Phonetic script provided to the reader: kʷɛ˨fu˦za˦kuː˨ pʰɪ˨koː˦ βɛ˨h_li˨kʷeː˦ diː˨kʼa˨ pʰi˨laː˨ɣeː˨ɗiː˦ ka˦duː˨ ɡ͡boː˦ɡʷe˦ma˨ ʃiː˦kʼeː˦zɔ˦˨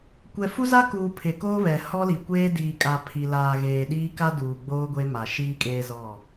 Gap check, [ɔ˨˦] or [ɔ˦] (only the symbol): ɔ˦